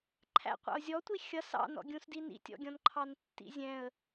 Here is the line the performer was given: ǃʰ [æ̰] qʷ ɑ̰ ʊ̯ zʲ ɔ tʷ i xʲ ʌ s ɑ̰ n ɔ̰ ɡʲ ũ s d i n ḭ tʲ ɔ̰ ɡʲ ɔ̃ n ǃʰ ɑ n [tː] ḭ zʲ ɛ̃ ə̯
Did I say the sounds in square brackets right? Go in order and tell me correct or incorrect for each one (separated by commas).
correct, correct